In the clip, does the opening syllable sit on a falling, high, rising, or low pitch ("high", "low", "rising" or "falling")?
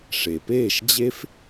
low